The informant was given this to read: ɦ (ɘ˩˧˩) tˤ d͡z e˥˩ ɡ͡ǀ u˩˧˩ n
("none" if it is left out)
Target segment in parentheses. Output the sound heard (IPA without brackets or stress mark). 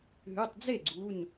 ʉ˩˧˩